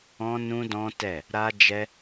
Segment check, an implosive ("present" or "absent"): absent